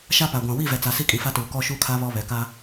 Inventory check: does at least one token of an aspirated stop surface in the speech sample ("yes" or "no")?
yes